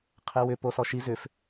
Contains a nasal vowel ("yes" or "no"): no